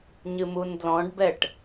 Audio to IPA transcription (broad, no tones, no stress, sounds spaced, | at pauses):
ɲ ɨ m u n d l ɔ̃ ɖ b ɛ ʈ